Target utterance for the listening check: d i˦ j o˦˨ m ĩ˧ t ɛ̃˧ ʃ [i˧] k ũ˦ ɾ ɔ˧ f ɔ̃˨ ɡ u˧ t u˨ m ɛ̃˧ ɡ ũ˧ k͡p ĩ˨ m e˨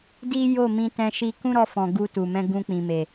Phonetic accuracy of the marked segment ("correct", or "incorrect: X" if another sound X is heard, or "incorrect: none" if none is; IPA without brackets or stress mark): correct